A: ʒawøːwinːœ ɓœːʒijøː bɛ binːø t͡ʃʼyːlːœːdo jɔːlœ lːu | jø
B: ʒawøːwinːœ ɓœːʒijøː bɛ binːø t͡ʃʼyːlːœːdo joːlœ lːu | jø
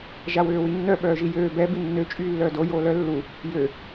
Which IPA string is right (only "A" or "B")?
B